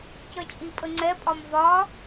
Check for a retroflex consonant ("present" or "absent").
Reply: absent